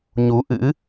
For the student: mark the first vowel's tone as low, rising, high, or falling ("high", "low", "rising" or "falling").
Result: rising